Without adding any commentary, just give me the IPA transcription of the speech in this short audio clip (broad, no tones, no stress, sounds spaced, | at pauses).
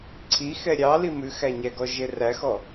ǀʰ i x ɛ ɾʲ ɑ l i m ʉ x æ ɲ æ ɡ ɔ ʒ e r æ x ɔ